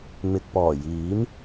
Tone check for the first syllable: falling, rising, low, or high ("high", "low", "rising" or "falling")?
low